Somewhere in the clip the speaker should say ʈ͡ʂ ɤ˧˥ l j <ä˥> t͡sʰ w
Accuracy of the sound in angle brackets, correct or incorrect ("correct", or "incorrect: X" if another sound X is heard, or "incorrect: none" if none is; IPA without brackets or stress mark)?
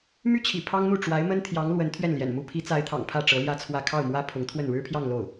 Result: correct